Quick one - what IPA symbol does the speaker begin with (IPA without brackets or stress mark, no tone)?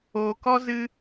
oː